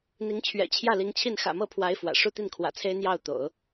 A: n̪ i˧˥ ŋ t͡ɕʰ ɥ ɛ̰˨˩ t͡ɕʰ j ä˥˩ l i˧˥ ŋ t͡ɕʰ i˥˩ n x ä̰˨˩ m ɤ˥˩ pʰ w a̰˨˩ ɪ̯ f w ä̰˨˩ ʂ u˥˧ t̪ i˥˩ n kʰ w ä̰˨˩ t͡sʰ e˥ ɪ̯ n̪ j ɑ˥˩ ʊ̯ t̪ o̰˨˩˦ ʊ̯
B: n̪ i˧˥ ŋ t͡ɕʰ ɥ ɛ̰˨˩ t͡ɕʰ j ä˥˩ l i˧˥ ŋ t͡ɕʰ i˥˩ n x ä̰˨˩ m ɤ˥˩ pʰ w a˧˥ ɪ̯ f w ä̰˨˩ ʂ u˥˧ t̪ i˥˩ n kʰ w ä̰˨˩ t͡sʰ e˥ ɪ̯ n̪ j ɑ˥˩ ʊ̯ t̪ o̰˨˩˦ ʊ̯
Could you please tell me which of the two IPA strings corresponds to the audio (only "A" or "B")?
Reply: B